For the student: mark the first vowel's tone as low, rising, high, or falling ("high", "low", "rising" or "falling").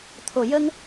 low